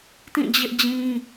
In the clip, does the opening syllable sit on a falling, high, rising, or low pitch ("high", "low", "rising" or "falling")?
falling